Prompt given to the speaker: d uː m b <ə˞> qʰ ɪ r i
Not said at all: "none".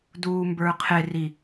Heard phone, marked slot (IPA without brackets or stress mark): ə˞